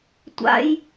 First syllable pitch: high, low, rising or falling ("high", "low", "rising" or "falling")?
high